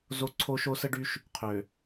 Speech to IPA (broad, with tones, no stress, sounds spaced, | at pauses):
z o˦ ǀʰ o˦ ʃ o˦ s ə˦ ɖ y˦ ʃ | qʰ ø˨